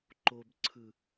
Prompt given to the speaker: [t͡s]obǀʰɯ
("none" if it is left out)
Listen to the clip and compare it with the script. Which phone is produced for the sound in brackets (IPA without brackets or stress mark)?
ǃ